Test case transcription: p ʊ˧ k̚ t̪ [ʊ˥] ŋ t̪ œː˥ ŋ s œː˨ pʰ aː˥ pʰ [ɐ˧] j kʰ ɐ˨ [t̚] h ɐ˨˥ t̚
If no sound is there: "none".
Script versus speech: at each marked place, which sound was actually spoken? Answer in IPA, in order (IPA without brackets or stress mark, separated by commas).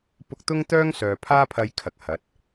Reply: ʊ˥, ɐ˧, k̚